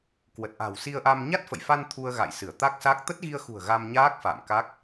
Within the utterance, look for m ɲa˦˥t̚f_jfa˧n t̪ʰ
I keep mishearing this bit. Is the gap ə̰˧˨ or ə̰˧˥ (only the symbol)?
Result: ə̰˧˨